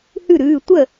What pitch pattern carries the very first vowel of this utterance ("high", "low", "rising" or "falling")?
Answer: falling